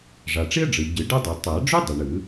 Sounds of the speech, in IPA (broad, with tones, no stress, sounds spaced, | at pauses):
ʐ a˩ ʈ͡ʂ i˥ ə̯ ɖ͡ʐ ɯ˩ ɟ ɯ˨˩˦ ɖ ɤ˥ dˤ ɤ˨˩˦ tˤ a˨˩˦ ɖ͡ʐ u˥ dˤ i˩ ɳ ɯ˨˩˦